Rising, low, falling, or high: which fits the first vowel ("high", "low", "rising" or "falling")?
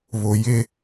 low